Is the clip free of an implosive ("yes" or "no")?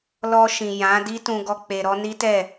yes